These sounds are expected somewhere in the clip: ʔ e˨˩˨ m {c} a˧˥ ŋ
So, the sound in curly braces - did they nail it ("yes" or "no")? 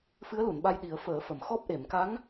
no